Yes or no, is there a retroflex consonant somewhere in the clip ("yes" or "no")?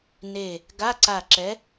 no